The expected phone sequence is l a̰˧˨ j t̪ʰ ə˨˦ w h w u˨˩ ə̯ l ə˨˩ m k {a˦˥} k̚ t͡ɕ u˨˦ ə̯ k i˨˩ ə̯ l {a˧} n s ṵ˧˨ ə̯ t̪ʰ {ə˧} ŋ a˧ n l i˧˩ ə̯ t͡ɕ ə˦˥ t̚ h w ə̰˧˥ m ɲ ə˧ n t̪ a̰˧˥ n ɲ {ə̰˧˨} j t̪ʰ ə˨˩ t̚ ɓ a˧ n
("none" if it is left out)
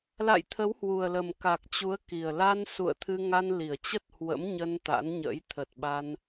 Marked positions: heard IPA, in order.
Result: a˨˩, a˧, ɨ˧, ə̰˧˥

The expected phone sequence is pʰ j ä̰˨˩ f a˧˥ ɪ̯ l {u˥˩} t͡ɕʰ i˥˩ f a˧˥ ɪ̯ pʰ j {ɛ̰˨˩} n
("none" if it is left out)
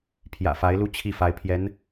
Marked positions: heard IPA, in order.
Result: u˥, ɛ˧˥

